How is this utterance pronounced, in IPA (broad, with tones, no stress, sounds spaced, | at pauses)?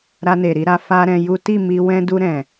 ɾ a˧ n e˨ ɾ i˨˦ ɾ a˧ f a˦ ɾ ɛ̃˧ j u˦ t i˦˨ m i˧ w ɛ̃˧ d u˧ ɾ ɛ̃˨